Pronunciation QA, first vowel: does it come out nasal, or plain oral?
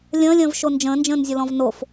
nasal